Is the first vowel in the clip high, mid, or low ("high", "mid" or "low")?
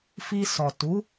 high